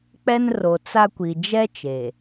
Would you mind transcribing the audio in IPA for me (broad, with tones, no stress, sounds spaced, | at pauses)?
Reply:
k͡p ɛ˦ n r o˨ t͡s a˦ kʷ i˨ d͡ʒ ɛ˦ t͡ʃ eː˨